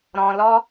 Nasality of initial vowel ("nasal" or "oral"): nasal